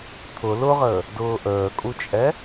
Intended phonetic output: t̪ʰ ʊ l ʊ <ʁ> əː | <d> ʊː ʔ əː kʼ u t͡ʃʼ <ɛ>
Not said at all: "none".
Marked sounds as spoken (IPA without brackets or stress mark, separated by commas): ʁ, d, ɛ